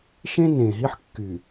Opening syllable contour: high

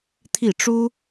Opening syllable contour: falling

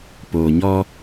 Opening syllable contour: low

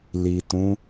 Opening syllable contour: low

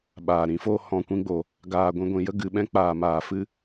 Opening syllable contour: low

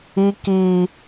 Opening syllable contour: high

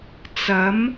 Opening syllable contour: rising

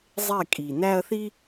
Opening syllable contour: falling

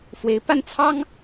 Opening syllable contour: rising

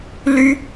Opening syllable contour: high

